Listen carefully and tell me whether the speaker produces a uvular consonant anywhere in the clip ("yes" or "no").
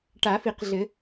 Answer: yes